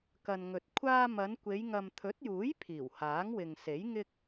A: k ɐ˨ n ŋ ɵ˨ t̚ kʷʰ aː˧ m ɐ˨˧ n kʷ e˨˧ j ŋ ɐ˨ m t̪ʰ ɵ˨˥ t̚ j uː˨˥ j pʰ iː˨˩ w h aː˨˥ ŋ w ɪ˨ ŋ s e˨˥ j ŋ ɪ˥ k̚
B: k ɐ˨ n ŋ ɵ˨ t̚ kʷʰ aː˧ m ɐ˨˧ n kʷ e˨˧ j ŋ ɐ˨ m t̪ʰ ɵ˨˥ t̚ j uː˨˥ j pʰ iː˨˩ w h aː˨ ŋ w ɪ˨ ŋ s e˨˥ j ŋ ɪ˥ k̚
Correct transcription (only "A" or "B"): A